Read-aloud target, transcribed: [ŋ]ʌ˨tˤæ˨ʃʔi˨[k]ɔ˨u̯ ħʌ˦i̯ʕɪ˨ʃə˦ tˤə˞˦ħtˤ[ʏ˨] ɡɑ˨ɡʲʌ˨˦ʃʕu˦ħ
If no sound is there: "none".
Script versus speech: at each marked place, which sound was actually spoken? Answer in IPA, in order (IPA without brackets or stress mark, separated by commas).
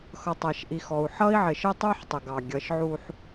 x, x, ə˨